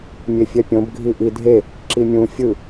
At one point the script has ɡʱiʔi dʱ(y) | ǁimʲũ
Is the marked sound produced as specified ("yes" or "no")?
no